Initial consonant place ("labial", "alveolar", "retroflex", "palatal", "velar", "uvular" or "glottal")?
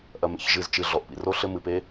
glottal